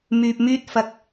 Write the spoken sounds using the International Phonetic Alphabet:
m yː˧ p̚ m yː˥ t̚ f ɐ˧ k̚

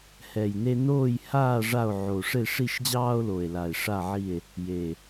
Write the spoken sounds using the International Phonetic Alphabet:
h ɛ˨˩ j n e˦ n oː˦˨ j h aː˦˨ ʐ a˦˨ o̯ ʕ o˨˩ ʂ e˦˨ ʂ i˦˨ ʃ d͡ʑ ɑː˦ o̯ l o˨˩ e̯ l a˨˩ e̯ ʂ a˦˨ ʕ i˦˨ e̯ | j e˨˩

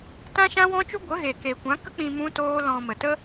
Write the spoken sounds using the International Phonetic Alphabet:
t ã˦ ʃ ã˦ w ɔ̃˦ t͡ʃ u˦ ɡʷ ə˨˦ ɣ e˨ k e˨ kʷ ã˨˦ k ə˦ k͡p ĩ˧ m ũ˦ t oː˦ l ɔ̃˧ m ə˨ t ə˦

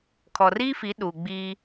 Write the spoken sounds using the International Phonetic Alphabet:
kʰ ɔ˨ r iː˦ f i˨˦ ɗ uː˨ ɡ͡b iː˦

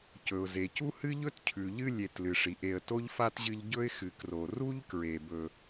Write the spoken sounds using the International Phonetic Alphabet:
c ɵ˩ ʊ̯ z e˩ c u˥ h ɨ˥ ʎ ɵ˥ t cʰ ʉ˩ ʎ ɨ˦ lʲ e˨ t l ɨ˩ ʂ i˩ ʔ e˨ ə̯ t o˥ ʎ f a˥ t ʑ ɨ˦ ʎ ɟ ɵ˥ ɪ̯ x ɨ˨ k r o˨ r u˥ ʎ k ɹ e˨ b ɵ˨

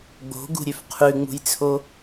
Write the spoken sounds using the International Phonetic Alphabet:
ɡ͡b o̤ ɡ ṳ ɾʲ ø f qʰ ʉ ŋ͡m ṳ j t͡sʰ o

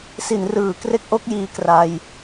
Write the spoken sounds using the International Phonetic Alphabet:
s i˩˦ n r ɯː˩˦ k r e˦˥ k̚ ʔ o˦˥ k̚ j iː˧ k r a˧ j

